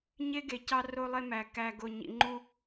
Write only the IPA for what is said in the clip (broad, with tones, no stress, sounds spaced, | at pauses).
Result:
ɲ e˦ ɡ e˨ c ɑ˦ r o˦ lˠ e˦ m æ˨ k æ˨ ɡ o˨ ɲ ḭ˨ ŋ͡ǃ u˦